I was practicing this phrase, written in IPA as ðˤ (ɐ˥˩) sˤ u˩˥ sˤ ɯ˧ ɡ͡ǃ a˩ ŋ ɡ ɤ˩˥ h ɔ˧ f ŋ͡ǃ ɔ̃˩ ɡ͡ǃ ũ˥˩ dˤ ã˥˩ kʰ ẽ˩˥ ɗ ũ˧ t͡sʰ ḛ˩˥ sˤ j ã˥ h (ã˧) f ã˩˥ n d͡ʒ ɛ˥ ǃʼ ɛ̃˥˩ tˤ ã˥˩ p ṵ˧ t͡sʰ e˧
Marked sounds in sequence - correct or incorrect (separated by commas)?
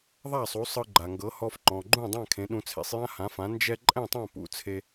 incorrect, incorrect